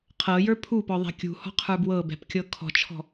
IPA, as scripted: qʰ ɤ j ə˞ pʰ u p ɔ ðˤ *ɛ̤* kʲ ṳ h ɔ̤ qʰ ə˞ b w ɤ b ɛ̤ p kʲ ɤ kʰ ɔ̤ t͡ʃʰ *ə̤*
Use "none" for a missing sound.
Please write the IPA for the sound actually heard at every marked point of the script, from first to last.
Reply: ɛ̤, ɔ̤

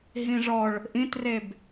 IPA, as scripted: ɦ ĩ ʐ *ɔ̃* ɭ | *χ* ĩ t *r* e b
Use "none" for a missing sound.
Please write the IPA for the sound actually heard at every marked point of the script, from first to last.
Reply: ɔ, ʔ, r

